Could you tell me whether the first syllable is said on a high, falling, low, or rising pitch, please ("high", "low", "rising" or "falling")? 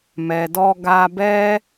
low